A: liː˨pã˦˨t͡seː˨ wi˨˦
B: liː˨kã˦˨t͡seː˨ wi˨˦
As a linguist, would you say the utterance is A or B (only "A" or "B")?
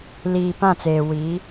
A